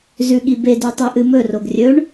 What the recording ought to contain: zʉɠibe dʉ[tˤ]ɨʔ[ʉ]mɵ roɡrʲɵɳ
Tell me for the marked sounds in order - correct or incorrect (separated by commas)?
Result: correct, incorrect